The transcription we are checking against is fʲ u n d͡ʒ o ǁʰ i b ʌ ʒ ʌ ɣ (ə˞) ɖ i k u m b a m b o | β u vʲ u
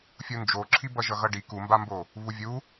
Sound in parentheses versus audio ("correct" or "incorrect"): incorrect